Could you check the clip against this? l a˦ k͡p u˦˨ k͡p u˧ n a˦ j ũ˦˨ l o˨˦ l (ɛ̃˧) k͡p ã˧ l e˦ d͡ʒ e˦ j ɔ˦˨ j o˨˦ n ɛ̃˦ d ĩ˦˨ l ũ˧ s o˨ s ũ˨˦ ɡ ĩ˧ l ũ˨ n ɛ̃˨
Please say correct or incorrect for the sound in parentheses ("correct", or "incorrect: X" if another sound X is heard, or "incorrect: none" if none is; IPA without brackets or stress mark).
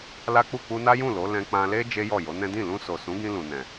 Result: correct